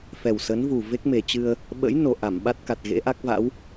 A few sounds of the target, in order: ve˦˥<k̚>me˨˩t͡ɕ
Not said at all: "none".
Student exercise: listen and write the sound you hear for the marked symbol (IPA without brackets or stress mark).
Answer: k̚